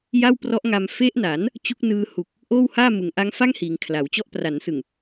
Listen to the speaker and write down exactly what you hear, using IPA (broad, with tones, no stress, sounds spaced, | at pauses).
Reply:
j a˥˩ w p r ɔ˦˥ ʔ ŋ a˧ m f e˦˥ ʔ n a˩˦ n | t͡ɕ u˦˥ k̚ n ɯː˧ h u˨˩ k̚ | ʔ oː˥˩ w h aː˥˩ m ɯ˩˦ ŋ ʔ a˦˥ ŋ f a˥˩ ŋ h iː˩˦ ŋ kʰ l a˩˦ w t͡ɕ ɔ˥˩ ʔ p r a˩˦ n s ɯ˨˩ ŋ